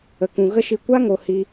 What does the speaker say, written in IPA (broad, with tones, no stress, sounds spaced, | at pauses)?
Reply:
ə˨ k ũ˨ ɣ ə˦ ʃ i˧ kʷ a˦ ŋ o˨ h i˧